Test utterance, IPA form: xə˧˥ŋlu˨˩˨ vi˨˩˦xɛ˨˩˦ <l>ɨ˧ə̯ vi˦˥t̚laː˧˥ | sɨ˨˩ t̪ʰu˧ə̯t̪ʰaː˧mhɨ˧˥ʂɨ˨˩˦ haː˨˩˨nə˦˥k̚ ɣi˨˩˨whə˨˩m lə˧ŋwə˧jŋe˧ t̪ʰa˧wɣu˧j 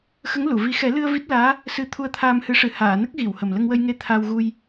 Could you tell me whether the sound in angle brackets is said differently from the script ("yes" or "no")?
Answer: no